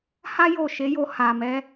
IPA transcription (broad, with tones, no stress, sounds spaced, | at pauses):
h a˦ j o˦˨ ʃ e˨˦ j o˧ h a˨ m ɛ˨˦